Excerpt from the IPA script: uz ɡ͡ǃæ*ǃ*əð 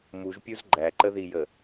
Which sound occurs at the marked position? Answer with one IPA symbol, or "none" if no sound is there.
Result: ǃ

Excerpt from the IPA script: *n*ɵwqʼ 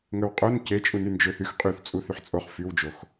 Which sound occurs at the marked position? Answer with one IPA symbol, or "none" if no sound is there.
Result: ŋ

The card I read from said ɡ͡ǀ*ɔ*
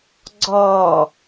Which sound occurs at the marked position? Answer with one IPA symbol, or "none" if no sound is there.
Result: ɔ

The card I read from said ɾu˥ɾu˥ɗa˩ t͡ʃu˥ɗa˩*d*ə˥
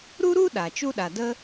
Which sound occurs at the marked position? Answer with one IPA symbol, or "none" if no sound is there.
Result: d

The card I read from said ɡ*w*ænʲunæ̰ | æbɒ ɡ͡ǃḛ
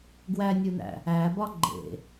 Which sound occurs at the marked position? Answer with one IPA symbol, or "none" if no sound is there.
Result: w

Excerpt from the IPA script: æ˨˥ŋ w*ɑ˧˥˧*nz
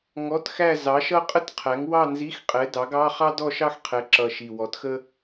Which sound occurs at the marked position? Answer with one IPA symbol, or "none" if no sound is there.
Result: ɑ˥˧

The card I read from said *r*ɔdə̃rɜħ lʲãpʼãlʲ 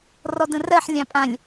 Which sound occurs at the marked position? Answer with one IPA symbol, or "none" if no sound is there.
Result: r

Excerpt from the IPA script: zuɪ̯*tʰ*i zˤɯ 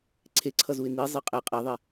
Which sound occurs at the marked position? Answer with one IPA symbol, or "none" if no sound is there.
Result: n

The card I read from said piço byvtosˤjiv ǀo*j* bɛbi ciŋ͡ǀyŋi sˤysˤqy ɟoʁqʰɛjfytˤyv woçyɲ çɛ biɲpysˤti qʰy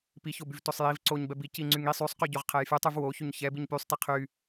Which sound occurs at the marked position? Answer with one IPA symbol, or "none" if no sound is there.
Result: ɲ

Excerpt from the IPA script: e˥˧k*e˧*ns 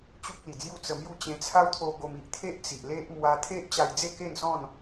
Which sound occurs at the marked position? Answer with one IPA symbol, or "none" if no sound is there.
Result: e˥˧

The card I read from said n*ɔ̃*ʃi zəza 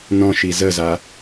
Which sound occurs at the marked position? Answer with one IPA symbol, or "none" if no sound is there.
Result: ɔ̃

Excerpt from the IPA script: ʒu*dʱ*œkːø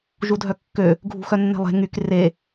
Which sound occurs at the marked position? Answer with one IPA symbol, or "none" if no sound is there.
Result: dʱ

